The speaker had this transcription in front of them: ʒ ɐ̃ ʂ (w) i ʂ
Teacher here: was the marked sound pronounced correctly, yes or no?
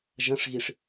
no